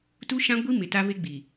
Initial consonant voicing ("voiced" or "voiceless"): voiceless